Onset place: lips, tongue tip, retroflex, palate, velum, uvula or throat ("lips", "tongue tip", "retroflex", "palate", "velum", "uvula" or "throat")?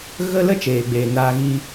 velum